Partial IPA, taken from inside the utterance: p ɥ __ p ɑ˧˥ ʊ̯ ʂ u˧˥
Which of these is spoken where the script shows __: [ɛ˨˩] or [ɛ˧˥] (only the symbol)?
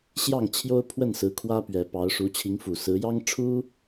ɛ˨˩